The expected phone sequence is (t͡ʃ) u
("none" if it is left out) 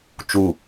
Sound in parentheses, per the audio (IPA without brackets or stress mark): t͡ʃ